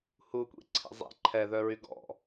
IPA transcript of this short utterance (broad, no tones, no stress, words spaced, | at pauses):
hukʷḭǀʰḭ zˤḛ ǃʰɛðœɹy ɡɔ̰